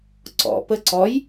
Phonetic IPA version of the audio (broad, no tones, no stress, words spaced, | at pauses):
ǀɔ̰pə ǀɔj